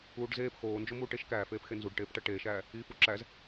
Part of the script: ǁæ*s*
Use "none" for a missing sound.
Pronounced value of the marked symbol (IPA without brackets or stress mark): z